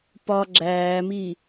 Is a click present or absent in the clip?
present